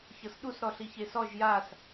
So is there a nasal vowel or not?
no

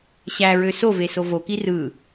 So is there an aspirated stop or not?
no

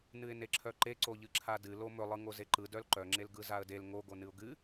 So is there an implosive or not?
no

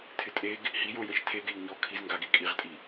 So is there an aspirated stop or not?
yes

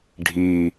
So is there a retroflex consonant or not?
yes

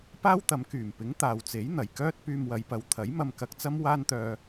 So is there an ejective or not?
no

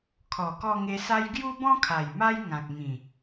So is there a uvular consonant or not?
no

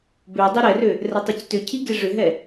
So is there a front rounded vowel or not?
yes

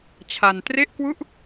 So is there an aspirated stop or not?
yes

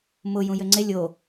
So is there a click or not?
yes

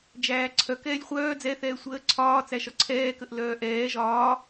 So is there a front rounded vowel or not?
yes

